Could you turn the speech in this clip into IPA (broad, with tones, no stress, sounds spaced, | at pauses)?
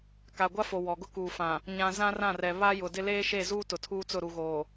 k a˨ ɡʷ a˦ f o˨ w ɔ˨ ɡ ʊ˦ k uː˨ f ã˨ | ɲ ã˦ z ã˦ r ã˦˨ r ɛ˨ β a˦ j ʊ˨ d ɪ˦ l eː˦ ʃ e˦˨ z uː˦ t ʊ˨ tʰ uː˦ t͡s ʊ˦˨ ɾ u˨ ɣ oː˨